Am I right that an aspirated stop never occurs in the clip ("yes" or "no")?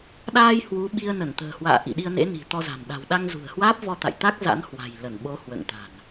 yes